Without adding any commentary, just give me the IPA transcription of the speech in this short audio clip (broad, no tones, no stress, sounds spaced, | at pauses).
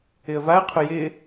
ɪ ə̯ v a ə̯ qʰ ʊ j ɪ